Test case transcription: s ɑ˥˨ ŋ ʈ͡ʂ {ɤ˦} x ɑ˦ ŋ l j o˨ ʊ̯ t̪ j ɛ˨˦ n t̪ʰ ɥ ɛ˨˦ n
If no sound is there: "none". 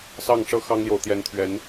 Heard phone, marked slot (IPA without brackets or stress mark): ɤ˦